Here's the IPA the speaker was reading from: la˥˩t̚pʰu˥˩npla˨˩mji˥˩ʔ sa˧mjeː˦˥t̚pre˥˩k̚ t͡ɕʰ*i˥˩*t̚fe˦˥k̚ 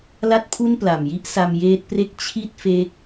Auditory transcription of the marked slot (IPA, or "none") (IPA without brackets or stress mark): i˥˩